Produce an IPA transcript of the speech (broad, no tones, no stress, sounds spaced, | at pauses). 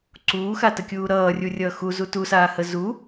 ǀ uː x a t ə kʲ uː ɾ ʌː rʲ u rʲ ʌː x u z u t u s aː h ə z u